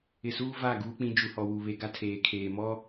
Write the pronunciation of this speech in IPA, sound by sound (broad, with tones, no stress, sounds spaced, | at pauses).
ɪ˨ s uː˦ v a˦˨ ɡ uː˦ k͡p ĩ˦ d͡ʒ u˨ h ɔ˨ w u˨ β e˦ ɡ a˦ tʰ eː˨ kʰ eː˨ m ɔ˦